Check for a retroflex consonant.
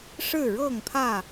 present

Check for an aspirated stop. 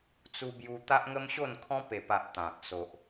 present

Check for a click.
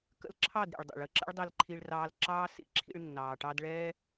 present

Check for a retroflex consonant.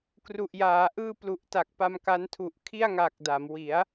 absent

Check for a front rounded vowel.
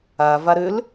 present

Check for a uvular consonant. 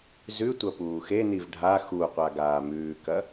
present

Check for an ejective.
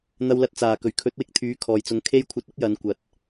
absent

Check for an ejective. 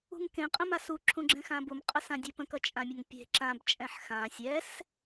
present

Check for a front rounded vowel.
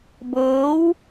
absent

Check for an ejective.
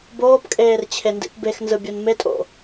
present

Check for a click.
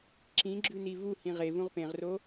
present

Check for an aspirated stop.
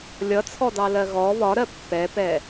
present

